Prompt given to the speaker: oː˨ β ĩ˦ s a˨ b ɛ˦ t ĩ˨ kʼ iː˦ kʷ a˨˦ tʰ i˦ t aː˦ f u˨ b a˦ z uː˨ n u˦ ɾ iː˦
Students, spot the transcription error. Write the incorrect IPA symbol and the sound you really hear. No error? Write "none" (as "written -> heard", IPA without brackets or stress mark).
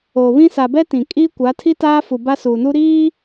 z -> s